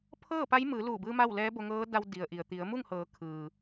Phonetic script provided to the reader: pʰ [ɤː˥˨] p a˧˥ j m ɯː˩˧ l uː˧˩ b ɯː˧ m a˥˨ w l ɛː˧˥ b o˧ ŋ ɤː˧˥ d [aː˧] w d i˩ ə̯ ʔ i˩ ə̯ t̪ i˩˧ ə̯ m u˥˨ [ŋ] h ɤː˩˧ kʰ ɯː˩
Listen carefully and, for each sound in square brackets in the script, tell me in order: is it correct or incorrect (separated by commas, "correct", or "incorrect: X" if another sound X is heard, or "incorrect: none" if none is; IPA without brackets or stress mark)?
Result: correct, incorrect: a˧, correct